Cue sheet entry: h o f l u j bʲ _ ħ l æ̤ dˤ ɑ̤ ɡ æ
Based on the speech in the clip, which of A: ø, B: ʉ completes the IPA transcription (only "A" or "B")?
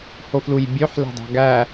A